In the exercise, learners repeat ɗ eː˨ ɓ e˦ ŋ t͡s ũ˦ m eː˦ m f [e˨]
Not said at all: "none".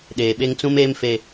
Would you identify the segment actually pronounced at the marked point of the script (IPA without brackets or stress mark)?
e˨